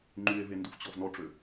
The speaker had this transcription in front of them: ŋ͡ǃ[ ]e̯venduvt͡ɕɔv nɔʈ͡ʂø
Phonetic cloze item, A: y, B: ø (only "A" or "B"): A